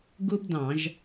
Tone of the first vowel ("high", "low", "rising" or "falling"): high